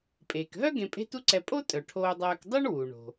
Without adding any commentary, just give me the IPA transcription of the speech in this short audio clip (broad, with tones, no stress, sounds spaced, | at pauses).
pʼ eː˩ k ɦ œ˥ ɡ ẽ˧ pʼ e̤˥ t u˥ ǀ ɛ˧ pʼ o˥ tʼ œ˩ ʈʰ oː˧ dˤ œː˧ k dˤ u˥ ɳ w u˩ ɳ o̤˩